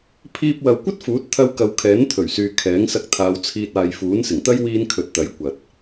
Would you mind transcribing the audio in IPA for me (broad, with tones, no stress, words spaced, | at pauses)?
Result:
pʰiː˧p̚wɐ˨w kʷɐ˥t̚fuː˨˥t̚ t̪ʰɐ˧wkɐ˨w kʰɛː˨˥nt̪ʰɵ˨˩ɥsyː˨ kʰɛː˨˥ŋsɐ˧k̚t̪ʰaː˨˧wt͡sʰiː˧t̚ aː˨jfuː˨˥nsɪ˨˩ŋt̪ɐ˥j wiː˧n kʰɵ˨t̚t̪ɐ˨˥j kʷɐ˨t̚